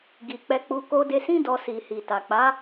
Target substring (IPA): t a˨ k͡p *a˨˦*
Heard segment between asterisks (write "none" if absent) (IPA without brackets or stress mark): a˨˦